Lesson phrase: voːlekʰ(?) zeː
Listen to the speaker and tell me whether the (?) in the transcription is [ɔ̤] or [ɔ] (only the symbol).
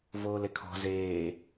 ɔ̤